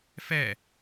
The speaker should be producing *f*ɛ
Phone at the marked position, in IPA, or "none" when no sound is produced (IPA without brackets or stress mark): f